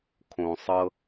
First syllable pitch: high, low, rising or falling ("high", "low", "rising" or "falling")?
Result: low